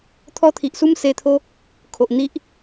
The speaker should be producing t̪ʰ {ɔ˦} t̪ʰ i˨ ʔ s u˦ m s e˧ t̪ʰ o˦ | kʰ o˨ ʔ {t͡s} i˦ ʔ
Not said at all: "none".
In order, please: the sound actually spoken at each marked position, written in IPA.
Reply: ɔ˦, n̪

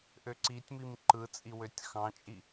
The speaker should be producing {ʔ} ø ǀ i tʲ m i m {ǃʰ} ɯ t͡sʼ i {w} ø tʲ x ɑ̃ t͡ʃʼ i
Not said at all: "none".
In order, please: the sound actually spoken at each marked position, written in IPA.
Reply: ʔ, ǃ, w

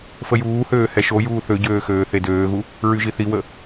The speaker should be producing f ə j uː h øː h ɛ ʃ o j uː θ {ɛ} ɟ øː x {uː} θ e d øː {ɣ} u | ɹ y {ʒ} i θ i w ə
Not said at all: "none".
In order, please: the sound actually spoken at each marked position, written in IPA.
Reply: ø, øː, ɣ, ʒ

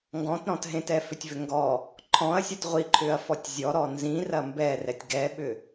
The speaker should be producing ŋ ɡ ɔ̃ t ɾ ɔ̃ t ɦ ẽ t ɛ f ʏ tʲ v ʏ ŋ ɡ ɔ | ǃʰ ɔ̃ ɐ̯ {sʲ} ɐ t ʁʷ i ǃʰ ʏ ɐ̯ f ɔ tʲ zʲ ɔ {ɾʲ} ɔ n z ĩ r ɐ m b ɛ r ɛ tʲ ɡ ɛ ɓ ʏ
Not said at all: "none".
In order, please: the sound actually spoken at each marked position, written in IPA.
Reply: sʲ, ɾ

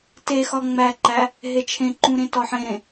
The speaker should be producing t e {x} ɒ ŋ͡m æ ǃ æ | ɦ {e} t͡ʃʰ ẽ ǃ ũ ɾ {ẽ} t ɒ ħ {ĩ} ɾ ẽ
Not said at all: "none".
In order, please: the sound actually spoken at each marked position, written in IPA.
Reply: x, e, ẽ, ẽ

